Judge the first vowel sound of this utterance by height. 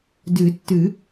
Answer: high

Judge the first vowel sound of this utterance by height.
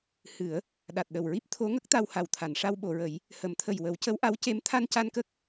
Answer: high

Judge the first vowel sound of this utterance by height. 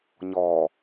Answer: mid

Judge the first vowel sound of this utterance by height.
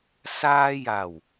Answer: low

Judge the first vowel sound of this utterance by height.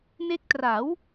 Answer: mid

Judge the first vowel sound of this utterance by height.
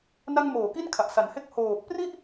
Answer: low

